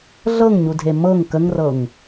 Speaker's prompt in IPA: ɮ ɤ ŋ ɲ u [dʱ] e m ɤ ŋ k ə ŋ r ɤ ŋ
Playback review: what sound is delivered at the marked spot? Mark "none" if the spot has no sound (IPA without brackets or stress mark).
dʱ